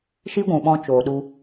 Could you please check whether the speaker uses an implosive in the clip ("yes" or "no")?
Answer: yes